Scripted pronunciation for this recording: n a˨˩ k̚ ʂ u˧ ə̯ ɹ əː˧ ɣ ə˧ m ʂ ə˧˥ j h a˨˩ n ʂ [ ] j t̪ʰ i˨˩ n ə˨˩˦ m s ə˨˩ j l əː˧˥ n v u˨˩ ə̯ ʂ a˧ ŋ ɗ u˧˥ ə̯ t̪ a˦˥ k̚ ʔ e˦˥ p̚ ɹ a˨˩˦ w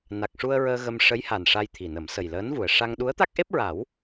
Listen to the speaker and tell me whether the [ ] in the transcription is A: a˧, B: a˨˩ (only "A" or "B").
A